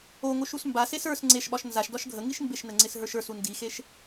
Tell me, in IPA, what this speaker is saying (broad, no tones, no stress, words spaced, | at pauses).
oŋoʃ usmbases ə˞s ŋ͡ǀeʃɓɒʃ nzaʃdɒʃ ɡʱə ŋiʃmbeʃnə ŋ͡ǀɪsɦə˞ʃə˞su ndixeʃ